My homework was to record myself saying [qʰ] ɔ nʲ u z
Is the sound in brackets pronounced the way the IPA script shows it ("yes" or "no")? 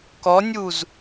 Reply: no